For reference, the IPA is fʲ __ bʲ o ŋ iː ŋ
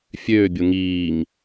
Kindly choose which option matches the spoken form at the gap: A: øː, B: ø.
A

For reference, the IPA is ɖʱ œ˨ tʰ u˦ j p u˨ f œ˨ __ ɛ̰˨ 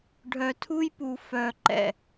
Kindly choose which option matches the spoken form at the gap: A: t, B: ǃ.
B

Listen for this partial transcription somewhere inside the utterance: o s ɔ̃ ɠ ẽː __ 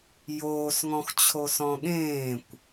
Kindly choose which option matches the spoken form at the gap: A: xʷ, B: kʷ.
B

